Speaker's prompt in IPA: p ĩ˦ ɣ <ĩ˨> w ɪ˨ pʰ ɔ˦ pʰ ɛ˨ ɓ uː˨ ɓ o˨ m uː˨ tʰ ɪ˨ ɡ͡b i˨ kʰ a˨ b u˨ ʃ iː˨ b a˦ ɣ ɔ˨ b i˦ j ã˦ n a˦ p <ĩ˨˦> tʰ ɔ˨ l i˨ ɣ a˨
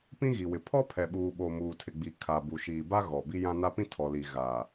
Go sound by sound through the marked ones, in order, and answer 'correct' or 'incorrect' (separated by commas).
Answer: incorrect, incorrect